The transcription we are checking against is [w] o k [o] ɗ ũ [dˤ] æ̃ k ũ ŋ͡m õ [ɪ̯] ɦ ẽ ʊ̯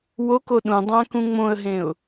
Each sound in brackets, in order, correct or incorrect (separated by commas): correct, correct, correct, incorrect